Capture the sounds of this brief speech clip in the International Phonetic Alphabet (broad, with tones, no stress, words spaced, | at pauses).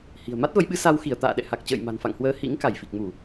hi̤˨˩ə̯ ma˦˥t̚və˨˦jɓɨ˨˦ sa˧wxi˧˩ə̯ t̪a̰ː˧˨ɗɛ̰˧˨ha˨˩k̚t͡ɕə̰ː˧˨j ma̤˨˩nfa̰˧˨ŋhwəː˨˦ hḭ˧˥ŋ ka˧˩jfi˨˩k̚mu˧˩˨